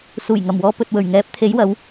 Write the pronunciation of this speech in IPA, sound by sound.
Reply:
s uː˨˩ j ŋ ɐ˨˩ m w ɔː˨ p ɵ˨ t̚ w ɵ˨˩ ɥ ŋ ɛː˨˥ p̚ t̪ʰ e˨˥ j w ɐ˨˧ w

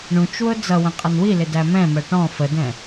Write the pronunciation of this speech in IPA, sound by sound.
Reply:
ɳ ũ t͡ʃ w ʊ d͡z ʌ w ə̃ qʼ ʌ n w i l ɪ d æ m ɛ̃ m ɜ ʈ ɔ̃ f ə d ɛ̃

